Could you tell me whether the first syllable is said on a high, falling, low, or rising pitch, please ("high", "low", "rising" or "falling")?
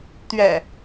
low